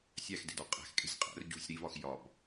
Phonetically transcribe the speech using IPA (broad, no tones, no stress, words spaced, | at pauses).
sʲæxde̤dɒ qʼæ̤xkʼe̤sʲ qʼæ̰r ɟṳsʲ ɾivɒx jɒb